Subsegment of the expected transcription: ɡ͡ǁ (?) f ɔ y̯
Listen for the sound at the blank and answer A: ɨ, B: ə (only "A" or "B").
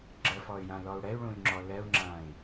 B